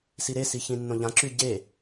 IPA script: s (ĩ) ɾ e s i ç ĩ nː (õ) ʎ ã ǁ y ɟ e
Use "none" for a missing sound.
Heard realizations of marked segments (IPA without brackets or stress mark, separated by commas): i, õ